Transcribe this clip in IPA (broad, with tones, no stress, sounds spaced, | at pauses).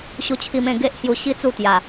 ɕ u˧ t͡ɕʰ i˧ m ẽ˥˧ ɡ e˦ ʔ h j u˧ ɕ i˦ t͡s u˥˧ t̪ j a˨˩